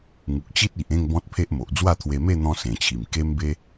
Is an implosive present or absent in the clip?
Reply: absent